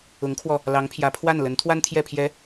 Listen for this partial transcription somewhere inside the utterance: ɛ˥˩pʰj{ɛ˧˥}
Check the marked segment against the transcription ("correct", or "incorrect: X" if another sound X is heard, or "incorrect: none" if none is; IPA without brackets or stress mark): correct